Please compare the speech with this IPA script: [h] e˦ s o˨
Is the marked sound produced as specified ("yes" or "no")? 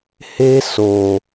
yes